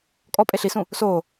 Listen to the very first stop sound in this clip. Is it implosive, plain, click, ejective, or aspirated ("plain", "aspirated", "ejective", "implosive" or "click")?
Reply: ejective